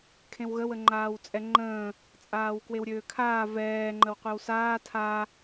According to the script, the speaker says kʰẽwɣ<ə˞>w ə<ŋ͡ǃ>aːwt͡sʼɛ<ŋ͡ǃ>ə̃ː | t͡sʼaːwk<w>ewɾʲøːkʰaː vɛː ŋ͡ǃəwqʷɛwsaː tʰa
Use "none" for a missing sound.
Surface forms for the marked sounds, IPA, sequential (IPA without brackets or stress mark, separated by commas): ə, ŋ͡ǃ, ŋ͡ǃ, w